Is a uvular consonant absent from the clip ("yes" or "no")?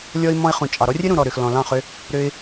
no